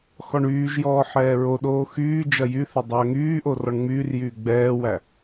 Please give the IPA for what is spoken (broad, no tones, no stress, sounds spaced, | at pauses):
x ɔ ɳ yː ʒ j ɔː ħ ɛː ɹ o ɗ oː x yː d͡ʒ ɐ j y θ ɐ dˤ ɐː ŋ yː ʔ o r ɔ ɳ ŋ͡m yː r j yː ɡ͡b ɛː w æ